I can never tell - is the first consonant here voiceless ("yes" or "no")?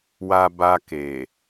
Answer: no